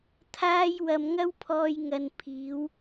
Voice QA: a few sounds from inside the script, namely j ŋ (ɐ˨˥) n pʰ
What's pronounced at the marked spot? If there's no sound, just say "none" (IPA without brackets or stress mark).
ɐ˧